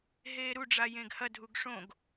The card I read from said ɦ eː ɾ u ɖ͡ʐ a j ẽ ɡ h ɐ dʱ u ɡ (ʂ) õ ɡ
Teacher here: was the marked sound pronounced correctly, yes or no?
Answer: yes